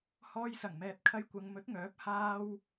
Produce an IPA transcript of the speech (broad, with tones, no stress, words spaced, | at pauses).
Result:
hɔː˧jsɐ˨˩ŋmɛː˨p̚ kʰɐ˧jkʷɐ˨˧ŋmɵ˨˥t̚ŋœː˨˥p̚ haː˧w